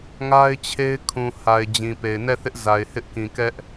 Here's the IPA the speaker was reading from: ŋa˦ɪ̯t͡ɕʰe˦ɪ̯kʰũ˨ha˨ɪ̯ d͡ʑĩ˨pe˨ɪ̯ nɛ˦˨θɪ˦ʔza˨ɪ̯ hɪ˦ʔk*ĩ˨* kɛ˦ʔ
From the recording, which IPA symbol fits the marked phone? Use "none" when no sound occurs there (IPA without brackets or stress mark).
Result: ĩ˨